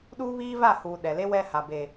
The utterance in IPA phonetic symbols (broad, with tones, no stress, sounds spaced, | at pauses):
ɗ uː˦ β iː˦ v a˦˨ h uː˨ ɗ ɛ˨ l e˦ w ɛ˦ h a˨ b eː˨